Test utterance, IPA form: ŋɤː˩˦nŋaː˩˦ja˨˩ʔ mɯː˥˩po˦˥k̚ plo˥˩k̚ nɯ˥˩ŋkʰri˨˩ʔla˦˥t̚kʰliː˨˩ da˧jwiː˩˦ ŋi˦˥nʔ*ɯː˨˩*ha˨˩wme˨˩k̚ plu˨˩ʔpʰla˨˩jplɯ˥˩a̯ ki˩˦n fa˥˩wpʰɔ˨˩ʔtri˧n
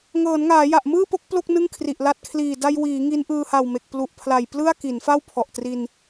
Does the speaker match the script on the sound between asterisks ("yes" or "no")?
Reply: no